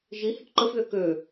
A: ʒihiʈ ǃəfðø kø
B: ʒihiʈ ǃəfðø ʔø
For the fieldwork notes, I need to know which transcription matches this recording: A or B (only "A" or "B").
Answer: A